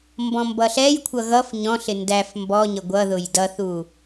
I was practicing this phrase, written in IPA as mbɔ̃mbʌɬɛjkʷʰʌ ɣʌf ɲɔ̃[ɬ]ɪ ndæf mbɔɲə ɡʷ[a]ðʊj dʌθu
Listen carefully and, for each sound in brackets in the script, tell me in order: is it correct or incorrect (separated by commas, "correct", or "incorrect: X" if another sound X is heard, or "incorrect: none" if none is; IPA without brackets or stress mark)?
correct, incorrect: ʌ